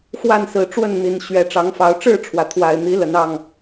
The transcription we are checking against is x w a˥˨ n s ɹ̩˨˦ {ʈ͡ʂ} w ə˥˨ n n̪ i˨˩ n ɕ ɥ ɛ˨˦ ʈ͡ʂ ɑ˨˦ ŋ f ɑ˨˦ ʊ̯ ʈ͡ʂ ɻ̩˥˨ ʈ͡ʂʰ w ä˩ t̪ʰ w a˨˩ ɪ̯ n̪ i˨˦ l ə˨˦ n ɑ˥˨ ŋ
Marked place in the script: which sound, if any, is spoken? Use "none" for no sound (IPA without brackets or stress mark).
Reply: ʈ͡ʂ